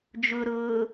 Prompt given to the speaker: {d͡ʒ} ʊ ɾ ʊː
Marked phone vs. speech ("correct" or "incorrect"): correct